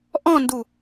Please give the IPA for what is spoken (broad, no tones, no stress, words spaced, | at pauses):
ʔɔ̃ndu